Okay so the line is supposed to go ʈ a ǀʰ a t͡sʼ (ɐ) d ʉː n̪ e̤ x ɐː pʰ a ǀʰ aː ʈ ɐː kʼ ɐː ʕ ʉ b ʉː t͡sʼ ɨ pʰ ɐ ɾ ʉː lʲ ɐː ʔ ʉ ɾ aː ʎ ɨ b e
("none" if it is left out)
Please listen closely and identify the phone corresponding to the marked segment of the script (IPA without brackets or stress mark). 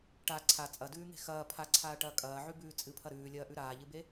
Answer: ɐ